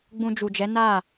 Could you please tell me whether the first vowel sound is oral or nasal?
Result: nasal